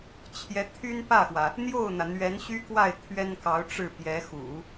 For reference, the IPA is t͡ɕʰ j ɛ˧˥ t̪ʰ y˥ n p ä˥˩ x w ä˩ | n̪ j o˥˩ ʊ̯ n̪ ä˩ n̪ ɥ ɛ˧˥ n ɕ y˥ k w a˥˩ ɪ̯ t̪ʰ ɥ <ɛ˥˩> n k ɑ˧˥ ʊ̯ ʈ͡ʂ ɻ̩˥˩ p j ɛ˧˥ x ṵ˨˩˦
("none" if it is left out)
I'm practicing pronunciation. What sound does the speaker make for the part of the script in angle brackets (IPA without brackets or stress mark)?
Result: ɛ˥